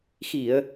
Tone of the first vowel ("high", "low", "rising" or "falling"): low